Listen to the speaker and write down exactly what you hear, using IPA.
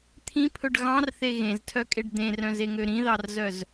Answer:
t̪ʰ ĩ pʰ ɵ ɖ ɣ ɑ̃ r θ e ɣ ẽ z tʰ œ kʼ e ɖ d̪ ẽ r œ̃ z e ŋ ø ɾ ĩ ð ɑ r z œ z

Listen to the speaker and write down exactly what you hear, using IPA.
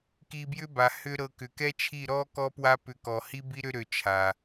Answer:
k i˧ b j ʏ˦ b a˨ h ʏ˧ ɾ ɤ˧ k ʏ˨ k ɛ˦ t͡ʃʰ i˦˨ ɾ ɔ˧ k ɔ˦ p w a˦ p ʏ˧ k ɔ˨ h i˦ b i˦ ɾ ʏ˦ ɾ ø˧ t͡ʃʰ a˨

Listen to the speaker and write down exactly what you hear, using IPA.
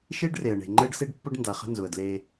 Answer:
ʃ e˦ ɖ r e˨ ə̯ ɳ e̤˨ ŋ͡ǃ əː˦ ɖ s e˦ ɖ pː ʊ˦ ɖ n d a˨ χ ə̤˦ n z ʊ˨ ə̯ d l eː˦

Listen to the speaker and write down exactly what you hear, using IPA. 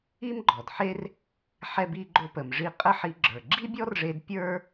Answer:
i˥ m ɡ͡ǃ ɔ˩ d ħ e˥ r | ħ ɛ˧ b i˧ ɡ͡ǃ o˧ p ə˩ m ʐ i˧ qʼ ə˥ ħ i˧ ɡ͡ǁ ə˞˩ ɡ͡ǁ i˥ bʲ ɔ˥ r ʐ e˧ d pʲ ə˞˥

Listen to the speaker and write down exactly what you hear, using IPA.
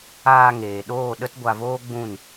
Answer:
aː˧ ŋ eː˨ ɗ oː˦˨ ɗ ə˦ t ɡʷ a˧ v oː˦ ɡ͡b ũ˦˨ n

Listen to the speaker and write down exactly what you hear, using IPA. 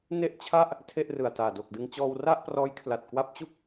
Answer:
n e˥˩ ʔ t͡ɕʰ a˥˩ ʔ | tʰ e˥˩ ʔ r ɯ˨˩ a̯ t aː˨˩ d o˨˩ k̚ d ɯ˧ ŋ t͡ɕ ɔː˧ w r a˥˩ ʔ p r ɔː˦˥ j kʰ l a˨˩ t̚ k w a˦˥ p̚ t͡ɕ u˦˥ k̚

